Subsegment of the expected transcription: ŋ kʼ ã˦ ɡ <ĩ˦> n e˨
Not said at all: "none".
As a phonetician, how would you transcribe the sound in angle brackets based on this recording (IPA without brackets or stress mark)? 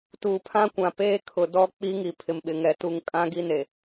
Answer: i˦